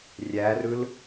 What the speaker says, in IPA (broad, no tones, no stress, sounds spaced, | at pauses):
rʲ æ r ɯ l